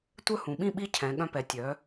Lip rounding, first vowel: rounded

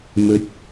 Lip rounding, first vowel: rounded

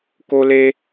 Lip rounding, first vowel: rounded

